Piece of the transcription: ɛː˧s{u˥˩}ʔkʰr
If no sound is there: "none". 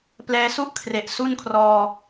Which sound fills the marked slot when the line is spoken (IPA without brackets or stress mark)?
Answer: u˥˩